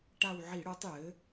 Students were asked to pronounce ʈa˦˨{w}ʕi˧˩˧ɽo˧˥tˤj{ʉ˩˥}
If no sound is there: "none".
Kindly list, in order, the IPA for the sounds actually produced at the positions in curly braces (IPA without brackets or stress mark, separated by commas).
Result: w, ɘ˩˥